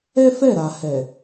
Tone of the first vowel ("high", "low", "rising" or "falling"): high